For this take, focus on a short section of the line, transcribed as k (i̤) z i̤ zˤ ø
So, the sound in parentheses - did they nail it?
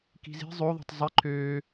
yes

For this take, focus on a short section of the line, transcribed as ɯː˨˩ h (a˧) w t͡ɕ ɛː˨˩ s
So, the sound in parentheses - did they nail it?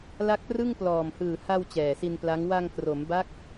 yes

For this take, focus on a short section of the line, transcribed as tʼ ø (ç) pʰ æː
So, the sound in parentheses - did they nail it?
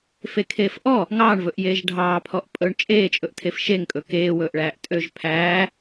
no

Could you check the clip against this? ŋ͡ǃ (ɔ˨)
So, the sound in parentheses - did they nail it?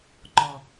yes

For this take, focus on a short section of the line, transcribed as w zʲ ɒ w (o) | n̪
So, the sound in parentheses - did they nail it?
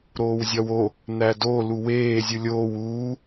yes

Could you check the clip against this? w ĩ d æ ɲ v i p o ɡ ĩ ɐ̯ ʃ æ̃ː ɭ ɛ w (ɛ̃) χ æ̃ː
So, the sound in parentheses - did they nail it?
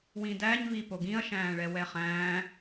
no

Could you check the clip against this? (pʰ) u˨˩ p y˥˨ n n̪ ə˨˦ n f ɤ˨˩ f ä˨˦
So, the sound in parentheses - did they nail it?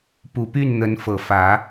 no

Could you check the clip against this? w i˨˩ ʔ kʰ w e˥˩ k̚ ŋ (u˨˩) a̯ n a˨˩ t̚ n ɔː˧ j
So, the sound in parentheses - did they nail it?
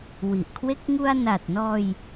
no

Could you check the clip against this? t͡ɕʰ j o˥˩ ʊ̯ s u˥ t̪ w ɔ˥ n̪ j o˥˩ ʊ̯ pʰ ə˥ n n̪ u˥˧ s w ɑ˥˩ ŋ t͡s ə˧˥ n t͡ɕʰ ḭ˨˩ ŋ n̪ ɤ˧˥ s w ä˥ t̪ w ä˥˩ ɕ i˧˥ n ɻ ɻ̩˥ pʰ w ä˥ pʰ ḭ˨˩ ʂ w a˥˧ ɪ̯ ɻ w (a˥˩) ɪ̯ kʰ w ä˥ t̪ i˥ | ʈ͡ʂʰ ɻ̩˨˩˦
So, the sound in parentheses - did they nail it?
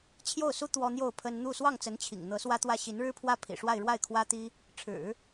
yes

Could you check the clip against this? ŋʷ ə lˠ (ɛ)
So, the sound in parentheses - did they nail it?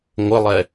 yes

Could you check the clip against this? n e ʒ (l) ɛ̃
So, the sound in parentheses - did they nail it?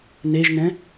no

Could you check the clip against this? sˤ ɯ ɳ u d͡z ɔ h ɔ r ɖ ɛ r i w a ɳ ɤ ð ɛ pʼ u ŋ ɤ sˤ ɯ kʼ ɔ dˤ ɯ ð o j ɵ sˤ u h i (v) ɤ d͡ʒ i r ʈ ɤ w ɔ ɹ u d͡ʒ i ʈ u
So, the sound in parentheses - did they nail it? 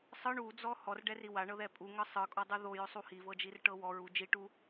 yes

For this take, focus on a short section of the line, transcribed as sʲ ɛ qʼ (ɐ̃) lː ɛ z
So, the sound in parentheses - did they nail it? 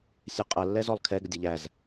no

